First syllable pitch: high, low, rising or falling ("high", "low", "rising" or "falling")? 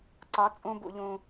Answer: rising